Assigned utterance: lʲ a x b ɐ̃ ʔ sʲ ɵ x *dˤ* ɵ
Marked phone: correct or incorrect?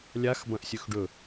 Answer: incorrect